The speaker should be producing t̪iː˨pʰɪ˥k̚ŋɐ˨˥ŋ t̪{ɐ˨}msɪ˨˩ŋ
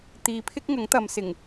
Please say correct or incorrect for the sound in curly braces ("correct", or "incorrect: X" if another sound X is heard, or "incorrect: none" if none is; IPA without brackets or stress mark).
correct